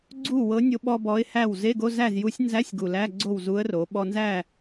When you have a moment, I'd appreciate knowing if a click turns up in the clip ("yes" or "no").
yes